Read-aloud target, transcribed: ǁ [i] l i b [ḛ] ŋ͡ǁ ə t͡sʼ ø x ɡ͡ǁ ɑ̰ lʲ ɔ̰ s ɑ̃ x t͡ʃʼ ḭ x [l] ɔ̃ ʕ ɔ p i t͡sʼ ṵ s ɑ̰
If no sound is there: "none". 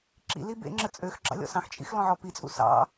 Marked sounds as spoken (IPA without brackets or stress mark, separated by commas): ḭ, ḛ, l